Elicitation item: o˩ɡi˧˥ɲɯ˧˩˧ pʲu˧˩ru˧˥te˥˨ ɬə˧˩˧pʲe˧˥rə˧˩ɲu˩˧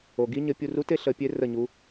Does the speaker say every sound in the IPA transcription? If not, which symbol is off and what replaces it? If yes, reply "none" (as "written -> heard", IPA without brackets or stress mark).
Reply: ɯ˧˩˧ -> ə˧˩˧